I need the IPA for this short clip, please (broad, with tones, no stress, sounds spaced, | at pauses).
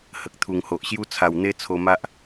h ə˨ k̚ t̪ʰ u˨˩ ŋ h o˨ ʔ ɕ j u˦ t͡sʰ a˨˩ w n̪ e˦ t͡sʰ o˧ m a˦ ʔ